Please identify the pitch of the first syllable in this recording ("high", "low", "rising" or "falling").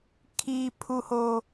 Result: high